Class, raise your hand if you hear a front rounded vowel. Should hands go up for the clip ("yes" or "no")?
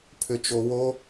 yes